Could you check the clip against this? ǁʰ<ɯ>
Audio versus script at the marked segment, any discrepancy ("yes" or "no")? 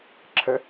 yes